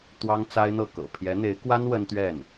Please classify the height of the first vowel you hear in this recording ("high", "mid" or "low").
low